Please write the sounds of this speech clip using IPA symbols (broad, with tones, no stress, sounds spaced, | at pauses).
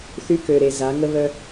θ y˦ k ø˨ ɾ e˨ z a˨˦ ŋ ə˦ β œ˦